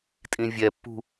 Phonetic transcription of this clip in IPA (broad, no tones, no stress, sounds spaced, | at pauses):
tʼ ĩ vʲ ɛ pː ṳ